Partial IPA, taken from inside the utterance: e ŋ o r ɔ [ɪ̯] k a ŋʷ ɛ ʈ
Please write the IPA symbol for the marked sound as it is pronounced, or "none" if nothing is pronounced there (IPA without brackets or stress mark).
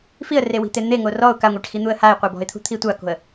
ʊ̯